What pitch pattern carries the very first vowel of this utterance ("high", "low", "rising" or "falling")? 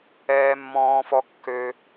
low